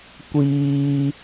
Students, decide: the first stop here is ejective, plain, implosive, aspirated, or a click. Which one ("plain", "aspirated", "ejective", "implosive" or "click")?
plain